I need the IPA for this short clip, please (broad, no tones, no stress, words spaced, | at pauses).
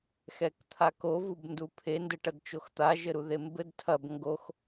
xɛkt̪ʰako vubndupʰe ndɘʈɐdt͡ʃoxt̪a ʒɘɾuðembɘd tʰɐb ŋɡox